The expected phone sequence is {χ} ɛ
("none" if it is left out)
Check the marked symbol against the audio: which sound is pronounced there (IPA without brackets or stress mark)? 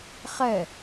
χ